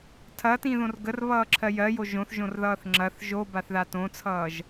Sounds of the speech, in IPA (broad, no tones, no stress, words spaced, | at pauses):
tʰɐtĩðõr ɡərβʌːǁʰɜ jɜjo ʒõθʒõrðʌːθ ŋ͡ǁɐθ ʒobaθða tõt͡sʰʌːʒ